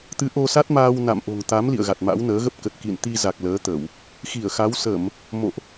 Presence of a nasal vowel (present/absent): absent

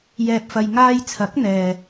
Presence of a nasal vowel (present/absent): absent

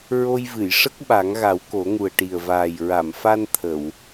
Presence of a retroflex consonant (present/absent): present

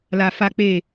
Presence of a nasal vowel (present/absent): absent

